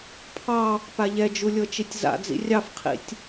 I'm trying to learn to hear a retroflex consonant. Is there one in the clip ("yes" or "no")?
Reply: no